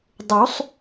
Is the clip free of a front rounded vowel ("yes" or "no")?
yes